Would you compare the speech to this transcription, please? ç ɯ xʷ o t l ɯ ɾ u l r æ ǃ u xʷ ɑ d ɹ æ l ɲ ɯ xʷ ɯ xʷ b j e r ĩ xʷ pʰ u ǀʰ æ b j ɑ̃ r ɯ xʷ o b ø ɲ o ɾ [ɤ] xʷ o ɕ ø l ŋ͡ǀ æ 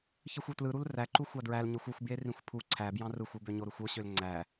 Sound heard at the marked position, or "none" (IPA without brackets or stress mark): ɯ